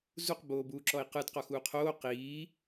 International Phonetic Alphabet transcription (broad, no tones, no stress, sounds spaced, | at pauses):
z u q b oː b uː ǁ ɔ i̯ q ɯ d q ɔ x uː qʰ oː q iː